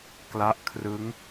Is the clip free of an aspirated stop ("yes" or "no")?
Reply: no